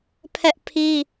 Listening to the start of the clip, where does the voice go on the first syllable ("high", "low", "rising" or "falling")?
high